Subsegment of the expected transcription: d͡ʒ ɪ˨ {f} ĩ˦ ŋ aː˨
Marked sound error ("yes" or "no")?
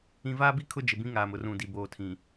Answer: yes